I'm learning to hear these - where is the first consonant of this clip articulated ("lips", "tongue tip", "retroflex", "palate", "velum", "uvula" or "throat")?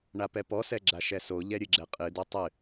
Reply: retroflex